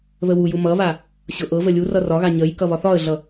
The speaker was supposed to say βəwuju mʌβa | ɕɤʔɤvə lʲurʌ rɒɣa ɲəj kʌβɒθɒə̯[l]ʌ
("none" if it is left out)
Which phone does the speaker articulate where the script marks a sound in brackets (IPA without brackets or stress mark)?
ɮ